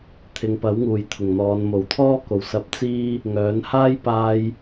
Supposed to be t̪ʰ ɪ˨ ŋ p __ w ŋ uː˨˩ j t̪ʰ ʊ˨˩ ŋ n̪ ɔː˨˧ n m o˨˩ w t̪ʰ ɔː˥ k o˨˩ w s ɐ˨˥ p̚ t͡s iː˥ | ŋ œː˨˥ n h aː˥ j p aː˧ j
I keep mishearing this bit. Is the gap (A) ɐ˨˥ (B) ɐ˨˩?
A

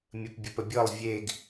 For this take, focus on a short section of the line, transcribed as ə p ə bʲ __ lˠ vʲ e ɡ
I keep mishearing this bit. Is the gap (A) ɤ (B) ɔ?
A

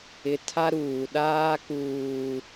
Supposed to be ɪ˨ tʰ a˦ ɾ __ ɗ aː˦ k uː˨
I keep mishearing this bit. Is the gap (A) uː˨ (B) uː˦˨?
A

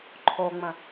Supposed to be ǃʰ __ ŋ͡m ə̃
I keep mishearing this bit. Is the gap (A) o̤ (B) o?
B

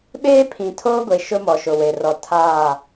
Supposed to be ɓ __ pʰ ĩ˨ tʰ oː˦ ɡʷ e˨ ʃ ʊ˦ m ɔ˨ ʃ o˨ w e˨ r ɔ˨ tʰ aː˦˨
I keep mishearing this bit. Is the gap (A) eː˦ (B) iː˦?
A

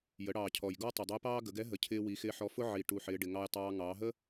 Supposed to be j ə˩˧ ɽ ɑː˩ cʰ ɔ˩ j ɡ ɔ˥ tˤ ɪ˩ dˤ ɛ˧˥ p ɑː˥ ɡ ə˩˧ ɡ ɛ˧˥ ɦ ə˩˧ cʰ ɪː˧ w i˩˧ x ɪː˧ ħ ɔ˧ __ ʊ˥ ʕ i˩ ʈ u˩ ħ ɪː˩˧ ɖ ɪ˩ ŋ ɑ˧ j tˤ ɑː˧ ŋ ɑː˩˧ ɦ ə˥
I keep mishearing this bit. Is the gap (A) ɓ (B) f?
B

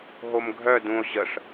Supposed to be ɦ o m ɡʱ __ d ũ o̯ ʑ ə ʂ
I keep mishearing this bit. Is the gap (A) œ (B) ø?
A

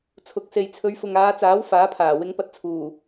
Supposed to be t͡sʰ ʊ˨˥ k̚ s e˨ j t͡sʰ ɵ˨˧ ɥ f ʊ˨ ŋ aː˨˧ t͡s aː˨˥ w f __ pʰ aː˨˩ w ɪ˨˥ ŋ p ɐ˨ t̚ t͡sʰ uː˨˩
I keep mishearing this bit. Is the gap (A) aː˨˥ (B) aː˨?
A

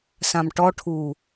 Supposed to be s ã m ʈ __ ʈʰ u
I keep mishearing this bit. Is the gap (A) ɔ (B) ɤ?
A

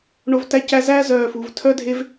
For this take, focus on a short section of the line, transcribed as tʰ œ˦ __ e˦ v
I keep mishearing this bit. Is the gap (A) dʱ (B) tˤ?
A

